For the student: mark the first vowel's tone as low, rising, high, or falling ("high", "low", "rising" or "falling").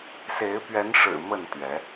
rising